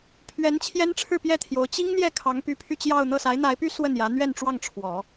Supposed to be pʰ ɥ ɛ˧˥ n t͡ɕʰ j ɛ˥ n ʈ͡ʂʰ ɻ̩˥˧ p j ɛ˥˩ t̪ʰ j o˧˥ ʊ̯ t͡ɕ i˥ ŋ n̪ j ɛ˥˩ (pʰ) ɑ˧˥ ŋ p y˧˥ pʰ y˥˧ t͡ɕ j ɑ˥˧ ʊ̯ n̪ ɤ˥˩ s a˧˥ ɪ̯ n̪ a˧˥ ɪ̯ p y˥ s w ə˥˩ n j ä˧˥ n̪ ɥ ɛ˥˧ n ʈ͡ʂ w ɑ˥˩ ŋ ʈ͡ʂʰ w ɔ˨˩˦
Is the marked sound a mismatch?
yes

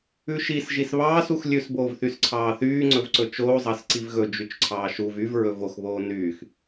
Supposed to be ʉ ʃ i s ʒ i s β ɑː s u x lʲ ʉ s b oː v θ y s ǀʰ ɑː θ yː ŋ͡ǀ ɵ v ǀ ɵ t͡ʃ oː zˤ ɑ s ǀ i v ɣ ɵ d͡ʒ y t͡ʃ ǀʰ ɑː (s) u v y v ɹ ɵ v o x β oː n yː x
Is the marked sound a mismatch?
yes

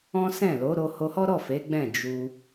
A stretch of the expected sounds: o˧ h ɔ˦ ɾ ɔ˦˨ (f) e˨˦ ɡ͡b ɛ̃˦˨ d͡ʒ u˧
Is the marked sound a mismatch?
no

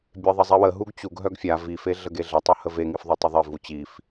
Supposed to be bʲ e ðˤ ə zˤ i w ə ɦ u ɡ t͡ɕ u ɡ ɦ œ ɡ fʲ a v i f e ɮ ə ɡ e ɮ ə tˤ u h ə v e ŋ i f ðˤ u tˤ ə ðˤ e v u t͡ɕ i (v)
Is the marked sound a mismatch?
yes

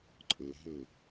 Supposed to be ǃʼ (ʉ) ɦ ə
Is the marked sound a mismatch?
yes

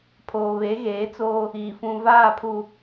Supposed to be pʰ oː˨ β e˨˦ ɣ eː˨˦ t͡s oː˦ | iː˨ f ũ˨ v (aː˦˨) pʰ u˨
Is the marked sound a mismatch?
no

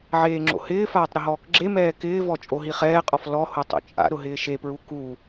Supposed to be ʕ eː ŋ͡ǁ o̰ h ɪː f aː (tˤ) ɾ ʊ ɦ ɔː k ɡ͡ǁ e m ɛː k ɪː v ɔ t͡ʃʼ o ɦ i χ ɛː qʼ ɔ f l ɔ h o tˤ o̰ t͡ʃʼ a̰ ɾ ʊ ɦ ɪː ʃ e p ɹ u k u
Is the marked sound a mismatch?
no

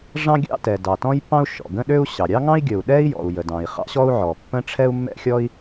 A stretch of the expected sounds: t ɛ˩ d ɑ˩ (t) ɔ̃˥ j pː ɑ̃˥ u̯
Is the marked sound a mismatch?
no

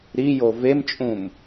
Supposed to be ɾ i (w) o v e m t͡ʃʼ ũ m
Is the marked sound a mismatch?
yes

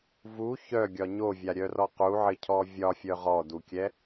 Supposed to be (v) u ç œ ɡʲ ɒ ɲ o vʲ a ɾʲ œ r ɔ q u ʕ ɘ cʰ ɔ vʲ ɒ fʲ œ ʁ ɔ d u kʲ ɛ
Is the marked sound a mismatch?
no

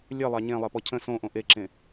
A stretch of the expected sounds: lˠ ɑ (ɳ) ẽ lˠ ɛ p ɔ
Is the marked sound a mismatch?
yes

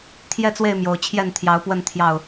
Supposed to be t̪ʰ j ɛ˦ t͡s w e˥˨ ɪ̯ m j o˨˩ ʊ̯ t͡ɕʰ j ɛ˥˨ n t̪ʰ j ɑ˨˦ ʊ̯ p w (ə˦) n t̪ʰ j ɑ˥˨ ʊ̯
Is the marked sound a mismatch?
yes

